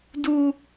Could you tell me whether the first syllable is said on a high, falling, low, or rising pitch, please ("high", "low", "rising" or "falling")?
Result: high